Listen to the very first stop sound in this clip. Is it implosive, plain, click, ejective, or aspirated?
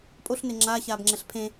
ejective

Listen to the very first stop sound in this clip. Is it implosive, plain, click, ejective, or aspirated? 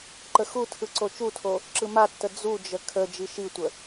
click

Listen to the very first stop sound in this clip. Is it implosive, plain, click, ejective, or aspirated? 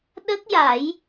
implosive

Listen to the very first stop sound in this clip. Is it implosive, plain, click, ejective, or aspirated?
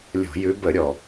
plain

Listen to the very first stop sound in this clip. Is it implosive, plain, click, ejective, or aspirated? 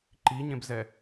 click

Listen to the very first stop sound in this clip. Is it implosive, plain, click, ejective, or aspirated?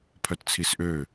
aspirated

